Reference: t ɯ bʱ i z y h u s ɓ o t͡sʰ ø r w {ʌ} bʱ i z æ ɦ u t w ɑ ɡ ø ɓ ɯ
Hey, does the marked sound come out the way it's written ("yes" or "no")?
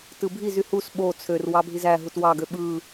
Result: no